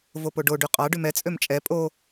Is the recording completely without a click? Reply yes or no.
yes